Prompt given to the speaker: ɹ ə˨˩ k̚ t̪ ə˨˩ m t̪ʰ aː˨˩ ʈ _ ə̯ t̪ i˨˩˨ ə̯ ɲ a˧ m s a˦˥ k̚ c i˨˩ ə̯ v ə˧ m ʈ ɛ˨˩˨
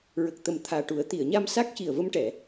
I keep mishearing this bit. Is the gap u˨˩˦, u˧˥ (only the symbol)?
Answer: u˨˩˦